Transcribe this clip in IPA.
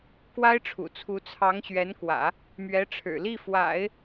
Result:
k w a˥ ɪ̯ ʈ͡ʂʰ ṵ˨˩ t͡sʰ u˧˥ t͡sʰ ɑ˧˥ ŋ ɕ ɥ ɛ˧˥ n k w ä̰˨˩˦ | m ɥ ɛ˧˥ ʈ͡ʂʰ ɻ̩˨˩ l i˥˩ f w a̰˨˩˦ ɪ̯

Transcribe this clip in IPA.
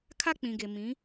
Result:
kʰ a˦ k͡p ĩ˨ ɡ e˨ m ĩ˨˦

